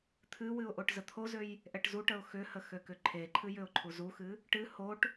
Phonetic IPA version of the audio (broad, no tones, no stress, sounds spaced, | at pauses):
t̪ʰ ɨ w ɨ ʊ̯ ʔ o ʈ z ə t̪ʰ o z ø j | ʔ ɛ ʈ z u ʈ ə ʊ̯ x ʏ h ə x ø k ʏ ǃʰ e ǃʰ ɨ j ʏ ʊ̯ ǃʰ u z u x ɨ | ʈ ɨ h o ʈ